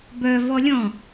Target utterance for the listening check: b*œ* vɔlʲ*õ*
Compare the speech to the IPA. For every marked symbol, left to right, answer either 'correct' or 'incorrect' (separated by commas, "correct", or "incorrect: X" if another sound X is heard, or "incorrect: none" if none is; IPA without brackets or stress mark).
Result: correct, incorrect: ɔ̃